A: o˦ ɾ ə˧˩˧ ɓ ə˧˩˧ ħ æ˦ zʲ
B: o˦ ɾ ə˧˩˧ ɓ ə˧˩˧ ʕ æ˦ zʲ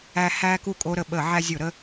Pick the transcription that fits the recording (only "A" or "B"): B